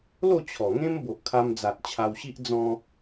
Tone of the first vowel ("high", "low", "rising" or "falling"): falling